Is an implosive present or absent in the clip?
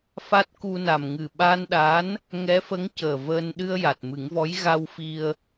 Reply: present